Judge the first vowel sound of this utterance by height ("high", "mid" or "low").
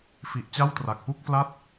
high